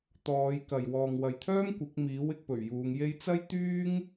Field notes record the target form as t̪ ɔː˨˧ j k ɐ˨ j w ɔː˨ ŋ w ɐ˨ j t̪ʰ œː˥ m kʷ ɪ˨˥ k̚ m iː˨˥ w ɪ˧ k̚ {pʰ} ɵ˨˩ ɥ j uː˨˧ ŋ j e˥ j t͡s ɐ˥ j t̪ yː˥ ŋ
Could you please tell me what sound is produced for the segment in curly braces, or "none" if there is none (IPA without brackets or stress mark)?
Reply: p